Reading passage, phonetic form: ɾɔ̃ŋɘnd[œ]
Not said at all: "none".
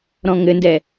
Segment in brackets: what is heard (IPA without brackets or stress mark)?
ɛ